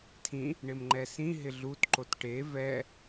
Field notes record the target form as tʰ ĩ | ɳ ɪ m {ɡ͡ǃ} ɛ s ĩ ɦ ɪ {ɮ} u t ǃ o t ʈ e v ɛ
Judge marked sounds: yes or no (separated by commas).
no, yes